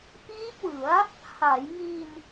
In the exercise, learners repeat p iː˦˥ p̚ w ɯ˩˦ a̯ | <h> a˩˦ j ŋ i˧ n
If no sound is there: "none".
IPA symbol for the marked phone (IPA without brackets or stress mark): h